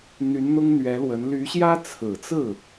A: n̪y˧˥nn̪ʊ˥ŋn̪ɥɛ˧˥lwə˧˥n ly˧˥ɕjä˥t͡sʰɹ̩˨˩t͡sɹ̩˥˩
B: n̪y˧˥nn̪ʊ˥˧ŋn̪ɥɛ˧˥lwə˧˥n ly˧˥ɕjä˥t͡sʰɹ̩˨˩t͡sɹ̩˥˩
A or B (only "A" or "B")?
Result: A